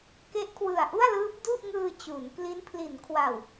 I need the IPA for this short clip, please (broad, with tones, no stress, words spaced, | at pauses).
ke˦˥ʔkʰwɯ˨˩a̯ʔu˥˩a̯lɯː˦˥p̚ du˥˩ʔŋɯː˧ t͡ɕu˩˦nkli˦˥n pʰli˩˦nkʰwa˨˩w